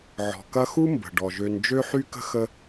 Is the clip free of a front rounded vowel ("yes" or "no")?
no